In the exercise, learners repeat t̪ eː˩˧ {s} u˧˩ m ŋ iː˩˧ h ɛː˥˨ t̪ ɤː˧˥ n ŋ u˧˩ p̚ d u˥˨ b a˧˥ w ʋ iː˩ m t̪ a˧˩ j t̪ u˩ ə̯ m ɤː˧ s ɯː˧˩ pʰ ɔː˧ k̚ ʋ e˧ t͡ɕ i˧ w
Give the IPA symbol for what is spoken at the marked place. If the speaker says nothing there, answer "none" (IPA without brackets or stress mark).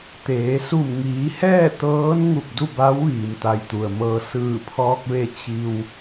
s